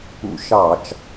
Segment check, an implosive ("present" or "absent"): absent